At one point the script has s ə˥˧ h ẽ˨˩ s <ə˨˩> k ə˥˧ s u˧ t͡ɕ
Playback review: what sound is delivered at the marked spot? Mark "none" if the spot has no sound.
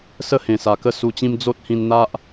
a˨˩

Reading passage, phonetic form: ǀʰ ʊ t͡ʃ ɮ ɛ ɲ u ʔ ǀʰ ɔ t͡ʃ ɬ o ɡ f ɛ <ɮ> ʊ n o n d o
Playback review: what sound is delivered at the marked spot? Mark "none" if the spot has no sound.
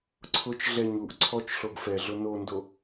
ɮ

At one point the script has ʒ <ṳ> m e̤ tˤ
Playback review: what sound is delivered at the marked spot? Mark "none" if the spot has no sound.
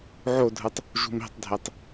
ṳ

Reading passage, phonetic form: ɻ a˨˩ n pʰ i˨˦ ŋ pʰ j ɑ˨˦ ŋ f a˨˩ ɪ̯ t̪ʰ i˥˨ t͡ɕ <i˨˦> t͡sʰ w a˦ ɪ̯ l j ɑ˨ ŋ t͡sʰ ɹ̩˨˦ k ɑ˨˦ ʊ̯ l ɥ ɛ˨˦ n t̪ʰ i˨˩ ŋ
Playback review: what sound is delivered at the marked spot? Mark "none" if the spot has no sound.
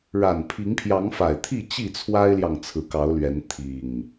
i˥˨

